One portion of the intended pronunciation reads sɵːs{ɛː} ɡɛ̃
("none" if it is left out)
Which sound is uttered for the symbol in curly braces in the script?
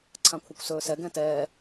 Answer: ɛ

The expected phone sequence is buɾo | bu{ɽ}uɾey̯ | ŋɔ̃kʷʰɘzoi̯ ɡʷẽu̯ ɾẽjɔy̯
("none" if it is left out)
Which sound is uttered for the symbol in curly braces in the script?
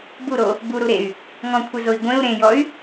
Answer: ɾ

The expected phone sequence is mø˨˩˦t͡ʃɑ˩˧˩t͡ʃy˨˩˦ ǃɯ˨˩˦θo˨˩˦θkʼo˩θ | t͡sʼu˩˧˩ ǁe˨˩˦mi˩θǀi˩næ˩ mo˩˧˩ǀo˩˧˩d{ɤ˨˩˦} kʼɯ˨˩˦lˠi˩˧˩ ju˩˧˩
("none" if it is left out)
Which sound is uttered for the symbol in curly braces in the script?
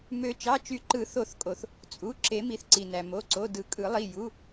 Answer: ɯ˨˩˦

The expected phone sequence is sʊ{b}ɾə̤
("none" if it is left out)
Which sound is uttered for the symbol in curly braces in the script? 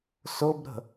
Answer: b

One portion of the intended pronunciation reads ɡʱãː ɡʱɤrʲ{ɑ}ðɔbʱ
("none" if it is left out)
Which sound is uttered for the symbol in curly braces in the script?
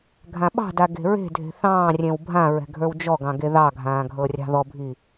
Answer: ɑ̤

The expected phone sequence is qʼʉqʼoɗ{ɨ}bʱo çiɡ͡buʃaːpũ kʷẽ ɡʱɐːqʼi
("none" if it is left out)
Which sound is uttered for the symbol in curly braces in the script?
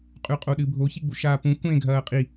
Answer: ɨ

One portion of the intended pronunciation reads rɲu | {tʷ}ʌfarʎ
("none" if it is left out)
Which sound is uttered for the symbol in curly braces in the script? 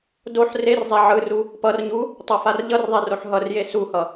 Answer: tˤ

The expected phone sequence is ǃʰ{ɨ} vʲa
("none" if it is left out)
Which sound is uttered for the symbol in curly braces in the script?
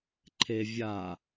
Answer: e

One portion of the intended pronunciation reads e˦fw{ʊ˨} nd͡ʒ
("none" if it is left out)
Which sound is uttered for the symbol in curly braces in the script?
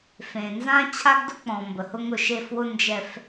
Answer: ʊ˦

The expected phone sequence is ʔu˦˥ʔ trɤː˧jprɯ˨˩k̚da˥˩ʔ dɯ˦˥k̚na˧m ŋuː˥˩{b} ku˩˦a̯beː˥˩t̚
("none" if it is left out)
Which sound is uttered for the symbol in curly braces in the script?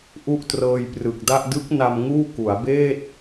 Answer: none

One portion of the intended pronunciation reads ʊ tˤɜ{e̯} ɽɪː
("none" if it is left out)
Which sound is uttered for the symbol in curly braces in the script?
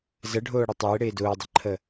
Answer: e̯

